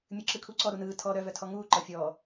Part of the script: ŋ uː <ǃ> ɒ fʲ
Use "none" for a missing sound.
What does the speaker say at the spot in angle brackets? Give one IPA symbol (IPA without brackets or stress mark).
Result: ǃ